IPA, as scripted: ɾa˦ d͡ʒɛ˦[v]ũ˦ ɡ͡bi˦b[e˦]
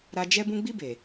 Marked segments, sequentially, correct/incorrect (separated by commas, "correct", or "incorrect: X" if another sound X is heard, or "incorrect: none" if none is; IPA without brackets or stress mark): incorrect: b, incorrect: e˨